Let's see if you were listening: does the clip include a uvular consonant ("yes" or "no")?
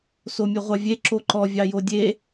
yes